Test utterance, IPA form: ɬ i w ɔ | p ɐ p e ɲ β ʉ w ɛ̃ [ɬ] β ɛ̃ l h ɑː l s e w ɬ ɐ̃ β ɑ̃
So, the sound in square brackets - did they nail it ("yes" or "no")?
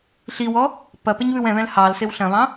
no